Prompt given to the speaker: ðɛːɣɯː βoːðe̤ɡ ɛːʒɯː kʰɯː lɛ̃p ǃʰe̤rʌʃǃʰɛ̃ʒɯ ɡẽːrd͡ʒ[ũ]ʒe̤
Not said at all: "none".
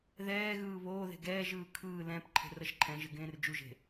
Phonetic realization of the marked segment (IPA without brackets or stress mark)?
u